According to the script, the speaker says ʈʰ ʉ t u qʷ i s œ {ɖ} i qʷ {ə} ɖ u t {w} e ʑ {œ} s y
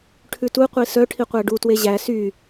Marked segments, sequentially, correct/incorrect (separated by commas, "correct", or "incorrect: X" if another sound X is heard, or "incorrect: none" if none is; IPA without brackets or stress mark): incorrect: ʈʰ, incorrect: æ, correct, incorrect: æ